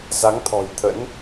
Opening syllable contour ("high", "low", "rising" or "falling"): rising